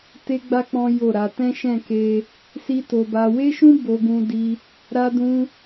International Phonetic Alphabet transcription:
te˦ɡ͡ba˦ k͡pɔ̃˦ jo˦˨ɾa˧ tɛ̃˦ ʃɛ̃˦˨ke˧ | si˦to˧ba˧ we˦ʃũ˦ bo˦ɡũ˦ di˧ | ɾa˦dũ˦

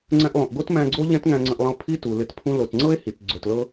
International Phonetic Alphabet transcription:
ŋ͡ǀɛ̃˧ʔlˠũ˨ʔɡo˦t mæ̃˧ɡ͡ǀo˦ ʎɛ̃˦t ŋæ̃˧ŋ͡ǀə̃˧ʔlˠə̃˧o̯ pʰi˦tu˨ lɪ˧t pʰũ˧lo˨tŋ͡ǀɤ˦e̯ hi˨t ɡ͡ǀɵ˨tlɤ˧

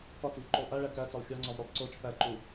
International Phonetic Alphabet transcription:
kɒt͡sivǃulˠ ʔæɭæ kæt͡sɒlˠ xʲɒŋ͡ǀɒvɾʲɒlˠ ǀot͡ʃ pæǃu

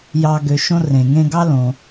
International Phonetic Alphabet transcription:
jɑ˨ɡø˩ ʃõ˦ rẽ˩ŋẽ˦ɡɑ˥ lõ˩

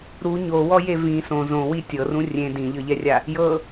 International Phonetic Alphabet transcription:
ɾu ɲowɔje vĩ sõ zõwi tʲɤrũ rʲẽ dĩʎɤʎɛrʲa | jɤ

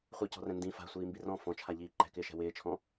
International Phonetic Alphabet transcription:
χʷicɔ̤rɛ̃ ndĩ fa̤sʷiːmbi rɔ̃ fɔ̃t͡ʃʰaʎiː ǃɛ̤kɪːʃɛ̤ wɪːt͡ʃʰɔ̃

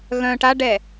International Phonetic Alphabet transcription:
ɣœ̃ ʈaɖɛ

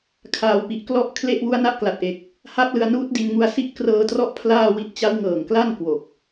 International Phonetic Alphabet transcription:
kʰaː˨˩wpi˨˩ʔklɔ˦˥ʔ kʰle˥˩ʔ wu˦˥a̯na˦˥ʔkla˨˩t̚ʔe˨˩k̚ | ha˦˥p̚lɯ˧a̯nuː˦˥t̚di˧n ŋu˧a̯si˦˥ʔkrɤː˧trɔ˦˥ʔ pʰlaː˥˩wi˦˥t̚ t͡ɕa˦˥wŋɤː˨˩ŋkla˥˩n kwo˨˩k̚

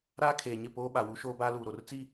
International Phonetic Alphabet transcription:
ɾaː˦kʰeː˨ɲɪ˦˨ poː˦ɓa˨wu˦ ʃoː˦baː˦luː˨ɾo˨r t͡si˦

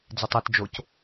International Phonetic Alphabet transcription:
d͡zɪtˤat d͡ʒoc

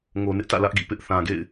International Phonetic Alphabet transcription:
ŋo˨nɪ˦ʔtä̰˦˨ lä˦ʔɡḭ˦˨pɪ˦ʔ θã˨ɡḛ˦˨ɪ̯

